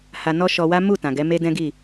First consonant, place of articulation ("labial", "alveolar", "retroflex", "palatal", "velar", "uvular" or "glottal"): glottal